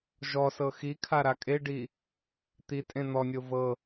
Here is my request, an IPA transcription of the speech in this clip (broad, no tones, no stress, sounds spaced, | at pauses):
ʒ ɔ s ɤ x i kʰ a ɾ a kʼ e ɖ i | t̪ i tʼ ẽ n̪ ɔ nʲ o v ɤ